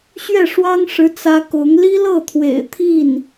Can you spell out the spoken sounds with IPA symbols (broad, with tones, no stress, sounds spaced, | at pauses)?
ɕ ɥ ɛ˥˩ ʂ w ɑ˥ ŋ ʂ ɻ̩˧˥ t͡s ä˥ k ʊ˧˥ ŋ l i˥ l ɤ˥˩ t̪ʰ w ḛ˨˩ ɪ̯ t̪ʰ i˥˩ n